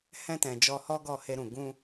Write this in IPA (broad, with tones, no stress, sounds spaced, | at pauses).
h ɛ̃˧ t ɛ̃˨ d͡ʒ ɔ˧ h ɔ˦ ɡ ɔ˦˨ h e˧ ɾ ũ˨ ɡ ũ˧